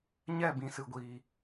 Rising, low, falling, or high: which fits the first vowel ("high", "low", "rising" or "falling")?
falling